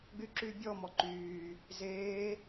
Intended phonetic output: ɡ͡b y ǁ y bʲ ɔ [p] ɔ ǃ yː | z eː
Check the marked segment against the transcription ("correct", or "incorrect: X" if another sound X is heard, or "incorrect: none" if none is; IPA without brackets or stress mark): incorrect: m